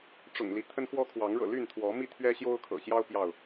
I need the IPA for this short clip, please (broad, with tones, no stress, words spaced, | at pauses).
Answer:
ʈ͡ʂʊ̰˨˩ŋli˦t̪ʰə˦nxwɔ˦ kʰwɑ˨˦ŋɻɤ̰˨˩ly˥˨nt̪ʰwɔ˨˦ mi˥˨t̪ʰɥɛ˦ ɕjo˦ʊ̯kʰɤ̰˨˩ɕjɑ˦ʊ̯ pjɑ˥˨ʊ̯